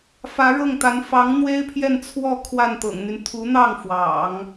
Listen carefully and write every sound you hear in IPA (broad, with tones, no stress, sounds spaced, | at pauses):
f ä˧˥ ɻ ɤ˥˩ ŋ t̪ a˧˥ n f ɑ˧˥ ŋ n̪ w e˥ ɪ̯ pʰ j ɛ˥˧ n t͡sʰ w ɔ˥˧ kʰ w a˥˩ n t̪ ɤ̰˨˩ ŋ n̪ y˦ n t̪ʰ u˧˥ n̪ ɑ˥˩ ŋ f w ɑ̰˨˩˦ ŋ